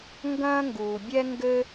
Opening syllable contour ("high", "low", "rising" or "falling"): high